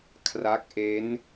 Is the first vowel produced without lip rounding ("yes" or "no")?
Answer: yes